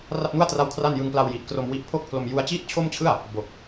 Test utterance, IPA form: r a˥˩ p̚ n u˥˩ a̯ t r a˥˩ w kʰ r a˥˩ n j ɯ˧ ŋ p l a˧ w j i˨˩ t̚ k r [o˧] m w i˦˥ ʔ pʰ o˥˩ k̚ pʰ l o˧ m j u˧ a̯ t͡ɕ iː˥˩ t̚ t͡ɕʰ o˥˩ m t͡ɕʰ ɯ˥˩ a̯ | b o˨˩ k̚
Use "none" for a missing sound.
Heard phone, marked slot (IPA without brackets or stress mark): o˧